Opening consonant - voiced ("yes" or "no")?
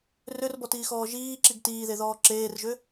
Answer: yes